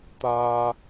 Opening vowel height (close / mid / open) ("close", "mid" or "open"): open